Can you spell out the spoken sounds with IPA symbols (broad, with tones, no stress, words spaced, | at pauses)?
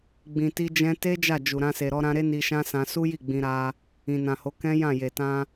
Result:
ɡ͡bĩ˨ti˧ d͡ʒɛ̃˧te˦ d͡ʒa˦˨d͡ʒu˨ɾã˧ se˨ɾɔ˧ɾã˧ɾe˦ ni˧ʃã˦sã˧ su˦ji˦˨ ɡ͡bĩ˧ɾa˧ | ĩ˨nã˨ho˨˦ kɛ̃˦jã˦˨je˨tã˧